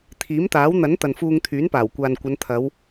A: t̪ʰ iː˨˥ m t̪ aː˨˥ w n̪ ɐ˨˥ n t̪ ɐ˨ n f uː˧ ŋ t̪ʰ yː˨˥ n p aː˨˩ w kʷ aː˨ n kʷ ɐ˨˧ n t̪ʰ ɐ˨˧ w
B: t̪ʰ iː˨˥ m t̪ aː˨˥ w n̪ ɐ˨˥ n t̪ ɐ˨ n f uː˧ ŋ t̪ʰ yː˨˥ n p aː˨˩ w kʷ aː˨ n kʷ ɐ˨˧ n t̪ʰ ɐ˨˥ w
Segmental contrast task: A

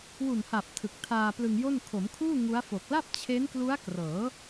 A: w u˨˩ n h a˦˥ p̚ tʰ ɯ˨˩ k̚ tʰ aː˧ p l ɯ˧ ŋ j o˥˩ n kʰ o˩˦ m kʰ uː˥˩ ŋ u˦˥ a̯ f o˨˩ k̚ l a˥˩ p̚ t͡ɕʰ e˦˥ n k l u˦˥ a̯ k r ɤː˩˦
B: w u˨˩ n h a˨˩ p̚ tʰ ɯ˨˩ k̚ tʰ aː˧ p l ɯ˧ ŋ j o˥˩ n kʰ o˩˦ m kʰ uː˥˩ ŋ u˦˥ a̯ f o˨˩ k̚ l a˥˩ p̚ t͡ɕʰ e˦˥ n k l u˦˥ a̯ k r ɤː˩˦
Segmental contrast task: B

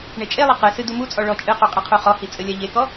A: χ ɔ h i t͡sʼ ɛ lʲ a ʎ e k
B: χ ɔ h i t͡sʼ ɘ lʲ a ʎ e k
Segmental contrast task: B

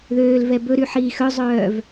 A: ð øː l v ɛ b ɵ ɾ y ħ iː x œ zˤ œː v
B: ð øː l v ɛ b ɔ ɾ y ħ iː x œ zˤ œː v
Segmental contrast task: A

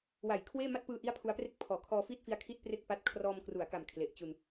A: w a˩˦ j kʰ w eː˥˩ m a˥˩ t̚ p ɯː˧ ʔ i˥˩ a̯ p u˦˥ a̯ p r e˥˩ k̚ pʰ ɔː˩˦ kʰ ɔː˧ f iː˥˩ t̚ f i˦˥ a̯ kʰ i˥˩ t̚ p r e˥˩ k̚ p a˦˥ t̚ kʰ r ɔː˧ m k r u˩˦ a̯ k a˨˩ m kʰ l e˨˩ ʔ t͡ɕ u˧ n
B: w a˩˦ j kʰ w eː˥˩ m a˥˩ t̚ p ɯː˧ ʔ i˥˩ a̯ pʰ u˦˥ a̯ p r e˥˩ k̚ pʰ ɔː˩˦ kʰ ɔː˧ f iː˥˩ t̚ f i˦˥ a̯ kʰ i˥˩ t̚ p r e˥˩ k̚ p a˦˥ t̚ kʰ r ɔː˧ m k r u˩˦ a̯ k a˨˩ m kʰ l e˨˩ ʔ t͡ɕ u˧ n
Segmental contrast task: B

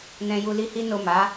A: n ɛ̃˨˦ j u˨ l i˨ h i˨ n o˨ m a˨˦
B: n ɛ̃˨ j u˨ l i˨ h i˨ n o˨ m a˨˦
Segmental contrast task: B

